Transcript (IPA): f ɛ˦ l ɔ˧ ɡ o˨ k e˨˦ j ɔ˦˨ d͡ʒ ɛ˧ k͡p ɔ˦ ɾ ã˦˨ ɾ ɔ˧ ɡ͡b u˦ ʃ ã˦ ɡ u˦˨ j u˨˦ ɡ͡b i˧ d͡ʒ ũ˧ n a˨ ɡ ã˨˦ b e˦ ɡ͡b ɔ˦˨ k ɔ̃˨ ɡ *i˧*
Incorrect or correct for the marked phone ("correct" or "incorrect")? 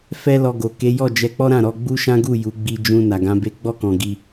correct